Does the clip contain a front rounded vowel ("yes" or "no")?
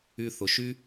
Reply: yes